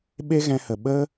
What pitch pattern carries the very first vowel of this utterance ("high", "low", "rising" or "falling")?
high